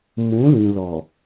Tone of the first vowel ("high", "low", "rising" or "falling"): rising